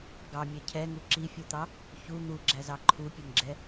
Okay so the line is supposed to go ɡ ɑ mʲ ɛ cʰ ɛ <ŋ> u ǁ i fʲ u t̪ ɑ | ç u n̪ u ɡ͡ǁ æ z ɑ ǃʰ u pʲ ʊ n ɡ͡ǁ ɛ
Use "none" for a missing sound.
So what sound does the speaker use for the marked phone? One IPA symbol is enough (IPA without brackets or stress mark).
ŋ